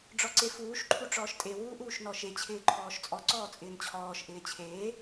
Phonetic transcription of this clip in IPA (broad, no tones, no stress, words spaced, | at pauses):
ɖ͡ʐɔǀefuːʃǃʰu ʈ͡ʂɔːʃtʼe wuːʔuːʃnɔʃe t͡ɕʰɪːǃʰɔːʃt͡sʼɔ ǀɔːt͡sʼɪːnt͡ɕʰɔːʃ ʔɪːt͡ɕʰeː